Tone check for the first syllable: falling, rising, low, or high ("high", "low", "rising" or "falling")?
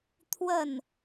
falling